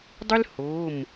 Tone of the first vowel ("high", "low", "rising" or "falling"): high